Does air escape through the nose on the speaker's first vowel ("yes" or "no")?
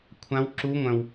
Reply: yes